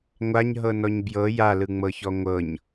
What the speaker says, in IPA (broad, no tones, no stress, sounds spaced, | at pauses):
ŋʷ a ɲ ɦ ɤ n ɔ ɲ b j ɤ j a l ɯ ŋ͡m ɤ ç ɔ ŋʷ ɤ ɲ